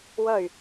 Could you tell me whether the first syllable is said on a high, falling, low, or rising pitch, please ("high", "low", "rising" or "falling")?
falling